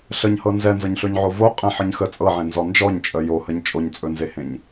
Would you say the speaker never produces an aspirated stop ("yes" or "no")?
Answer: yes